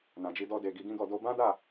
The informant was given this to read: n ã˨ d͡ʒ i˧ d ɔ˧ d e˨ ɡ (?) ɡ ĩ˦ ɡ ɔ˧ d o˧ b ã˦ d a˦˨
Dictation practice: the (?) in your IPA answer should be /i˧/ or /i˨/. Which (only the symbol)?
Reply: i˧